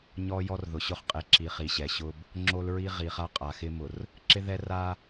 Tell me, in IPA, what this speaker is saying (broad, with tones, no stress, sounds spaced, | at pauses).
ɲ ɔ˦ j ɔ˦ r ð ʊ˨ ɕ ʊ˦ χ qʼ e˨ ǁ i˨ χ i˨ ɕ ɛ˨ ɕ ʊ˦ b | ŋ͡ǁ o˦ l ɹ i˦ ʁ i˨ χ a˦ qʼ a˨ x ɪ˦ m ʊ˨ r | ǁ ɪ˦ ð ɛ˦ r a˦